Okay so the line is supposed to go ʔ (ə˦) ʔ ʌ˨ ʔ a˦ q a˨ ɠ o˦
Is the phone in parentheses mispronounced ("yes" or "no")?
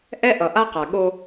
yes